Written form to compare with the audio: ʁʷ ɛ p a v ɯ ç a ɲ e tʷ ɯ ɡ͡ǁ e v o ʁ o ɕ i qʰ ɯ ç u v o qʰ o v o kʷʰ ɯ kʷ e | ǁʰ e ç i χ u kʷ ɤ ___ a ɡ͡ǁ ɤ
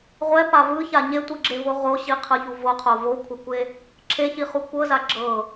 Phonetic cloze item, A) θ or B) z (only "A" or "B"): B